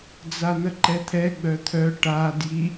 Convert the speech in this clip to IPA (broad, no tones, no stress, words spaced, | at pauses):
d͡zan̪əǃɛt̪ʰɛ ɡ͡bœt̪ʰœ ʈa dji